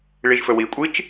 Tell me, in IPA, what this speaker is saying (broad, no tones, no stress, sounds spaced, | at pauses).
ɭ i ʒ f ɵ w i kʷʼ i t͡ʃ